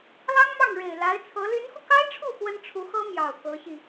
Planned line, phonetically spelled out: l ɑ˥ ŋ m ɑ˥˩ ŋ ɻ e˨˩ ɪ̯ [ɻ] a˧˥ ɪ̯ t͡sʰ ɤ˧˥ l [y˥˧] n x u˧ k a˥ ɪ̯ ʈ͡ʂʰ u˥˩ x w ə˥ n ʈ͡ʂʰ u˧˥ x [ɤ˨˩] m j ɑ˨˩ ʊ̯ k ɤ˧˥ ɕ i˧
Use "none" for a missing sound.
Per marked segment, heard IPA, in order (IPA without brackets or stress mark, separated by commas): l, y˧˥, ɤ˥